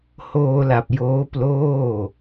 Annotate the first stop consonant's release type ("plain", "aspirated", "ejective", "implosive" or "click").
plain